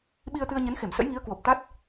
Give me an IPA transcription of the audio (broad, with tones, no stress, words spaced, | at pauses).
ɓi˧ə̯t̪ɨ˧ə̯ɲə˨˦nxe˧˩m sə̰˧˥jŋi˨˦ə̯kwo˨˩p̚ t̪a˦˥t̚